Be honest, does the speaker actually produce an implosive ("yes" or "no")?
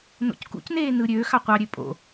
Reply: no